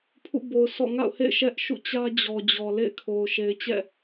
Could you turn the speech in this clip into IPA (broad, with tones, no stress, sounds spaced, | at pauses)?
pʰ ṵ˦˨ b o˨ ʊ̯ s ɔ̰˦˨ ŋ a̰˦˨ ʊ̯ h ḛ˦˨ ɪ̯ ʃ ɛ˦ ʔ ʃ ṵ˦˨ t͡ɕ ä˦ d͡ʑ ɔ˨ d͡ʑ ɔ˨ l ḛ˦˨ ɪ̯ kʰ o˨ ʊ̯ ʃ e˨ ɪ̯ t͡ɕ ɛ̰˦˨